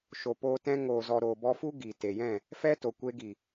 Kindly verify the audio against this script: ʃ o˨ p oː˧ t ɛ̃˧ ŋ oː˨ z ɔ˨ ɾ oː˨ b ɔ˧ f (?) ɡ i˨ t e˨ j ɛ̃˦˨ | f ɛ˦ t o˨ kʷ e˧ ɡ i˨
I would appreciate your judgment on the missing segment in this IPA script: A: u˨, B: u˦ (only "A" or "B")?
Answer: B